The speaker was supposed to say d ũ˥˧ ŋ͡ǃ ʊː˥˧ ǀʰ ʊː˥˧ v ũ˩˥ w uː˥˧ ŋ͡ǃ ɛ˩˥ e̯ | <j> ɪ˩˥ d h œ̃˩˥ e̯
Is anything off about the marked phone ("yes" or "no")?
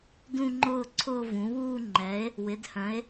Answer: yes